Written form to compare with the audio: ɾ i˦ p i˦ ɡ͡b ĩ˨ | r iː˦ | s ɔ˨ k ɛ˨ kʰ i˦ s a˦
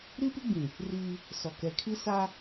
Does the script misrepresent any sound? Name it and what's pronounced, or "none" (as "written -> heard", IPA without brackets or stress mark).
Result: none